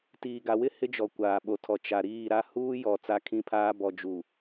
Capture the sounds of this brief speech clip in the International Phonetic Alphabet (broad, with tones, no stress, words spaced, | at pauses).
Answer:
tiː˨ɡa˨wɪ˦ hɪ˦d͡ʒɔ˨ kʷaː˨ɓo˨tʰɔ˨ t͡ʃa˨ ɾiː˦˨ɾa˦ huː˦ jɔ˨ t͡sa˦kʰĩ˦pʰaː˦ bɔ˨d͡ʒu˨